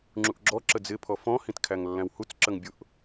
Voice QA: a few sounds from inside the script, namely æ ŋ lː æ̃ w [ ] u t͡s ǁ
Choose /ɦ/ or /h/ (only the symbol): h